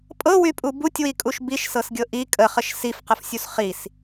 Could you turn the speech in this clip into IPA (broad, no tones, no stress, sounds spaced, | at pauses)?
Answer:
pʼ ɤ w y pʼ u b u tʲ w i kʼ u ʃ b i ʃ s ɤ s ɡʲ ɤ ʔ i kʼ ə χ ə ʃ s i f q ə f sʲ u s χ i s